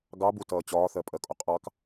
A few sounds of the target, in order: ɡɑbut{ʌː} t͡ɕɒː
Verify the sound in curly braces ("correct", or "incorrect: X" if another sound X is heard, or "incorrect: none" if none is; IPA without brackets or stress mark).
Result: correct